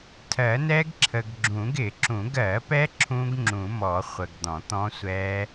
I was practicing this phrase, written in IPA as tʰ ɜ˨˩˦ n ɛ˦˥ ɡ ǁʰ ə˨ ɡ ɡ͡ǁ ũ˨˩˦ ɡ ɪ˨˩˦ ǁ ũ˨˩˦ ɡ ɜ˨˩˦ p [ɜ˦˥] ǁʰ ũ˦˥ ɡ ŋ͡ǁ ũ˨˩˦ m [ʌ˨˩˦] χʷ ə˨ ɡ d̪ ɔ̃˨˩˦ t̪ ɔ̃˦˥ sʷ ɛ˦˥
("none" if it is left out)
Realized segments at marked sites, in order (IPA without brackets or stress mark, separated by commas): ɛ˦˥, ɔ˨˩˦